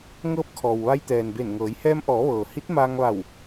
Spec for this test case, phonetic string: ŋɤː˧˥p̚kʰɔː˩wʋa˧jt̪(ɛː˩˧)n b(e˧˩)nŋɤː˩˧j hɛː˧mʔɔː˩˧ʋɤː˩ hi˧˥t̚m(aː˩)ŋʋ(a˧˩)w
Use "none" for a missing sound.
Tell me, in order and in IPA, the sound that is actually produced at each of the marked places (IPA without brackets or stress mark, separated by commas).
ɛː˩, e˧˩, aː˧, a˧˩